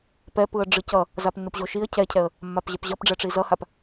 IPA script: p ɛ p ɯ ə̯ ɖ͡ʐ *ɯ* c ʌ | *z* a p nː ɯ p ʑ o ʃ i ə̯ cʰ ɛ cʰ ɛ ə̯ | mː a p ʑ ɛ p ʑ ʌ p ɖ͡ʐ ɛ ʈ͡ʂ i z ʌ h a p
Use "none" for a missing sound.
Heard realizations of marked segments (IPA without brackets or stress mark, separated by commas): ɯ, z